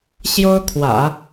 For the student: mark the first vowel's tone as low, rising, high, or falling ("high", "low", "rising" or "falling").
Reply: high